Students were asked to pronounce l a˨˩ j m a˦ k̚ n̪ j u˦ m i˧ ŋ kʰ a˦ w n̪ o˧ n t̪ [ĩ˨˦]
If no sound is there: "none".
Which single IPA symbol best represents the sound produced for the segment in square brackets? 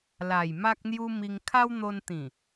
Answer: ĩ˨˩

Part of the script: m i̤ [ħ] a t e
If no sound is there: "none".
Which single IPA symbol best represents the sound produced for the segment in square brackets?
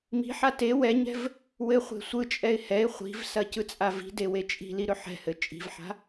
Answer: ħ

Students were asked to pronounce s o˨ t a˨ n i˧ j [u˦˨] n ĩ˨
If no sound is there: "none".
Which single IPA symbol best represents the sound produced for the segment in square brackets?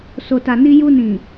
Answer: u˧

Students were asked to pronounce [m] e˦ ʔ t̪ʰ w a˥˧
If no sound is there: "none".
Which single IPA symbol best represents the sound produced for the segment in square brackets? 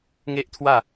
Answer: ŋ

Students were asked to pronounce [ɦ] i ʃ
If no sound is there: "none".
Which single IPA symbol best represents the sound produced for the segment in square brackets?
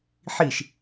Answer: ħ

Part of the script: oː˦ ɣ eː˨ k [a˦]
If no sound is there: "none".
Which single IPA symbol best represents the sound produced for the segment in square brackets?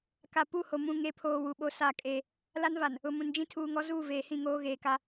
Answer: a˦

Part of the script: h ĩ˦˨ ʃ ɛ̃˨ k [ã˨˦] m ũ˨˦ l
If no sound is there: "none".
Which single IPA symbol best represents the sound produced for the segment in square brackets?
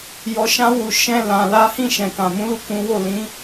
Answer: ã˨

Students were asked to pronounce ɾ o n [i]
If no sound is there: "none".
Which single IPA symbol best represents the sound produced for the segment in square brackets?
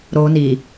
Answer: i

